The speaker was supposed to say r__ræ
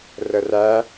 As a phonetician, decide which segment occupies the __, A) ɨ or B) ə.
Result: B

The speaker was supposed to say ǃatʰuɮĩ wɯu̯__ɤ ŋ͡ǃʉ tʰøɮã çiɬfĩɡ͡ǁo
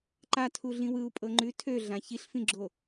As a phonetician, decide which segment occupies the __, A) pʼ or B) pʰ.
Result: A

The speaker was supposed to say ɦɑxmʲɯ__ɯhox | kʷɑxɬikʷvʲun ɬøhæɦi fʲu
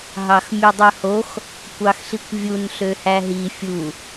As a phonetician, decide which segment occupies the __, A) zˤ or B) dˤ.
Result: B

